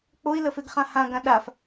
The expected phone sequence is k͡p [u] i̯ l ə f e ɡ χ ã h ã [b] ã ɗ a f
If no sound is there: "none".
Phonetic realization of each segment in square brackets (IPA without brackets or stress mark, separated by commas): o, ɡ